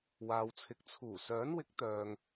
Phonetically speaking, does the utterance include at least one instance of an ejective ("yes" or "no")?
no